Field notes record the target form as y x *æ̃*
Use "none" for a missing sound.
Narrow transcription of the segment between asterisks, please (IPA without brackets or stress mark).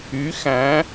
æ̃